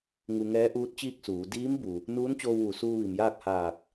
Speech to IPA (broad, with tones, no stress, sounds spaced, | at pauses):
ŋ u˧ ŋ ɛː˧˥ ʔ uː˧˥ t̚ t͡ɕ iː˥˨ k̚ s uː˩˧ d iː˧˥ m b u˩ | n uː˧˥ n t͡ɕ oː˧ w ʋ u˩˧ s uː˧ ʋ i˩ m j aː˥˨ k̚ h aː˧˩ k̚